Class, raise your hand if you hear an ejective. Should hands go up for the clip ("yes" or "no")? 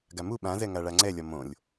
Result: no